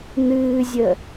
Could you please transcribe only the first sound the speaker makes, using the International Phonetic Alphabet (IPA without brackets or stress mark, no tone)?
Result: n̪